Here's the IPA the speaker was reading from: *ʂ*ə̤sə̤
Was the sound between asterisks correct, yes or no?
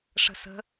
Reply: yes